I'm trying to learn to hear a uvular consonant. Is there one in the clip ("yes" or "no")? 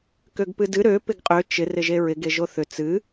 yes